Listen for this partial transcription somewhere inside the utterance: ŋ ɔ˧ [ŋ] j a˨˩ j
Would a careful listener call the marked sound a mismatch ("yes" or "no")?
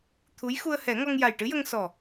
no